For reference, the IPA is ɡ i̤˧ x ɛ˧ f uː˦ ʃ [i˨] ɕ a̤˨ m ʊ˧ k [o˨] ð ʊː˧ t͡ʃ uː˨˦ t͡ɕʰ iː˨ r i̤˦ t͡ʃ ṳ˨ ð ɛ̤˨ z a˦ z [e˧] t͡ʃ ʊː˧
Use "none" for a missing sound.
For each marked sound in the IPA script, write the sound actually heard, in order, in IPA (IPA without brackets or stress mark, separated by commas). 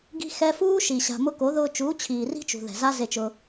i˨, o˨˦, e˧